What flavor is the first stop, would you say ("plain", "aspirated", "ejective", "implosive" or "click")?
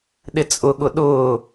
implosive